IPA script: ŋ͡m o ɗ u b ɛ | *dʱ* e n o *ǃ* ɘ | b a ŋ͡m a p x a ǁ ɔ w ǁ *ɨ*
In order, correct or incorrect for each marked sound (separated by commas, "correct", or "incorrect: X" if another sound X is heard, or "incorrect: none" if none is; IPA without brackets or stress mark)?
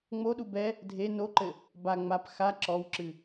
correct, correct, correct